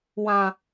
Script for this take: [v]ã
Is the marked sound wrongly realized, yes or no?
yes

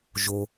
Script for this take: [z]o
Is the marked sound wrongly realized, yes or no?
yes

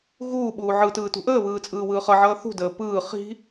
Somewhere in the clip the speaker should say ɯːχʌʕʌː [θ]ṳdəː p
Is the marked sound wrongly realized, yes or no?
no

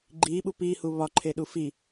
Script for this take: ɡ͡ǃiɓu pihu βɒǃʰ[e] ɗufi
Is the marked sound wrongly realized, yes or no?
no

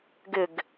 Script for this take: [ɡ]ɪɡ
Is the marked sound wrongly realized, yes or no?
no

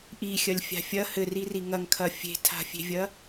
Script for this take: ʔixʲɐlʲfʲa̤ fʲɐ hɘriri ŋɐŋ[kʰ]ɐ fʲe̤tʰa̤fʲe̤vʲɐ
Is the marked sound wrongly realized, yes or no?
no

